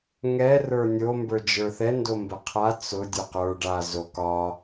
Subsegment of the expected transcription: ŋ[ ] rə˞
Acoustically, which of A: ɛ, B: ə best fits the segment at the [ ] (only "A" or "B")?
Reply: A